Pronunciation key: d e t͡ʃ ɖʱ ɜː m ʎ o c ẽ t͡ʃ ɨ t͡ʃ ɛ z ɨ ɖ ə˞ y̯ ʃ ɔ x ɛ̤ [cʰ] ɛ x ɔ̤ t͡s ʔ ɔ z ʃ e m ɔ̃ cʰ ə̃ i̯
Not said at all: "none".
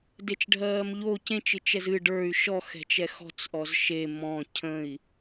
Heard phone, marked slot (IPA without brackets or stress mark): t͡ʃ